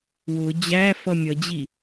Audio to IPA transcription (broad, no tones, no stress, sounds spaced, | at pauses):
w ʊ d͡ʑ æ f ʌ mʲ ʌ d͡ʑ i